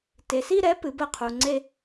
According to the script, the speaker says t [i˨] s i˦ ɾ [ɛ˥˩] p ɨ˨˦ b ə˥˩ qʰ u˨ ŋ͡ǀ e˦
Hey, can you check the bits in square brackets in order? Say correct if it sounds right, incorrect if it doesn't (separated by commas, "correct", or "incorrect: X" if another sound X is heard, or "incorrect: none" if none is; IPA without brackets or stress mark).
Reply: incorrect: e˨, incorrect: ɛ˨˦